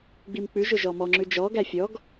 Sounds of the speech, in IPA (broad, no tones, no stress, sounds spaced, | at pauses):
ɡ͡b i m k͡p ʉ ʒ ɵ ʒ ɔ m ɔ ŋ͡ǁ ʉ d͡ʒ ɔ ɡ æ fʲ ɔ ɡ